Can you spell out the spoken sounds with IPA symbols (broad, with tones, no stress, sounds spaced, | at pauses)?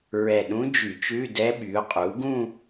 ɹ ɛ˧˩ ɗ ũ˧˥ d͡ʒ y˧˩˧ t͡ʃ ʉ˧˥˧ d ɛ˧˥ ɓ y˩˥ ʊ̯ qʼ u˩˥ ɡ ũ˥˧